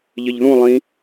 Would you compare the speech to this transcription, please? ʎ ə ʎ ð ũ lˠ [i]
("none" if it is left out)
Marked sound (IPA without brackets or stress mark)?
ĩ